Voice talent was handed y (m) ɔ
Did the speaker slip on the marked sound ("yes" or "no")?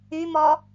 no